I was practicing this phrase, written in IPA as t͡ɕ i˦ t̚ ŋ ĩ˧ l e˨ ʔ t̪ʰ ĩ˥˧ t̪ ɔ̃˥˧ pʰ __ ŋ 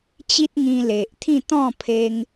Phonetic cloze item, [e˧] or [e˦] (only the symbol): e˧